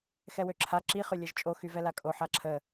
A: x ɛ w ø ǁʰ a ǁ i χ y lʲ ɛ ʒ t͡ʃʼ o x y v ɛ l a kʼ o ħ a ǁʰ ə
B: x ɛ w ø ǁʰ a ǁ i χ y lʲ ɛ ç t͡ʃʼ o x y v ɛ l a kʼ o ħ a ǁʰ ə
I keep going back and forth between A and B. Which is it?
A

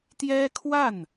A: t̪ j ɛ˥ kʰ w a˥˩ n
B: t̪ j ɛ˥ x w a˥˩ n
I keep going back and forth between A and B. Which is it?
A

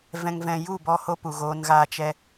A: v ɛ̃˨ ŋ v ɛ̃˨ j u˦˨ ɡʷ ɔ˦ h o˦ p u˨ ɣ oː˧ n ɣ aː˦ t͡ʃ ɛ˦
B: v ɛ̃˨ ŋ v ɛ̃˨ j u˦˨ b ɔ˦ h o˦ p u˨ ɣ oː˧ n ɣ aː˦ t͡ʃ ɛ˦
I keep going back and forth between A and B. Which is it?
B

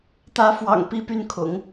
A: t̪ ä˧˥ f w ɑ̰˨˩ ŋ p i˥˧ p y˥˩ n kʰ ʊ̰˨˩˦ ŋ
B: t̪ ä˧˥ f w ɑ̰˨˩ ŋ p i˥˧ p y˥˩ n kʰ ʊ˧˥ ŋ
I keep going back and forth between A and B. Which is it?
A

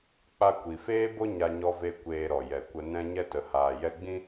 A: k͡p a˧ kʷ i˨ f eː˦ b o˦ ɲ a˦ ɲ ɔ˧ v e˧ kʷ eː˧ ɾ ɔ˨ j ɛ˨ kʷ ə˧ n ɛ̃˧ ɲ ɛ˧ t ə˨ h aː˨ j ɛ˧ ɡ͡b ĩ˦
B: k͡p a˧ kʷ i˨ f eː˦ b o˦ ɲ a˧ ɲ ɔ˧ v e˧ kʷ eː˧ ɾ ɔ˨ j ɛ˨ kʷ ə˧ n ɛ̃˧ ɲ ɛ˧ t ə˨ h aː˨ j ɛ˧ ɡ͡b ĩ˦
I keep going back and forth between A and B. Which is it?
B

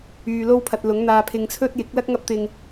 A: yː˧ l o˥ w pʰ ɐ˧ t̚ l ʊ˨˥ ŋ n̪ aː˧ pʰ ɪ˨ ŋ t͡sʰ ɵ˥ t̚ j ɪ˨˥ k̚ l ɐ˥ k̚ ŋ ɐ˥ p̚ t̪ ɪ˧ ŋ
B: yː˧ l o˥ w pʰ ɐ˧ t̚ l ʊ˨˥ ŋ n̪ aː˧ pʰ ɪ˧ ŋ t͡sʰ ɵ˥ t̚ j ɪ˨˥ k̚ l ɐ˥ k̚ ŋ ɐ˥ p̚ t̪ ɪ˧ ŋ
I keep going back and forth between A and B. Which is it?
B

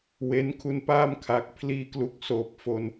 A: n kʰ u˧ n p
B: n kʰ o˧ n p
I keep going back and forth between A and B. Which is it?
A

